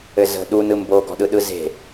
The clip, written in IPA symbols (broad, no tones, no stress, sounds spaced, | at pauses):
ɘ z ə̤ ɗ u n ɯ m b oː ɡ ɔ̤ ɗ ɯ ɗ ɯ z e̤